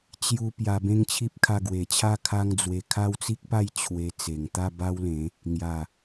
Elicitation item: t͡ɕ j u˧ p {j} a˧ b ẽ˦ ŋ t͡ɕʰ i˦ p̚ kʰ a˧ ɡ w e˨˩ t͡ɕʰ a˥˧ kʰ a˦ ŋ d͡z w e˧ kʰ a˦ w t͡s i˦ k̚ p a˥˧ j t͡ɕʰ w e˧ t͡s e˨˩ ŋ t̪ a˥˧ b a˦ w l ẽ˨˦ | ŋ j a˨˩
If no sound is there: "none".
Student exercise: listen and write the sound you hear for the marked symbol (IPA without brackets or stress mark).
j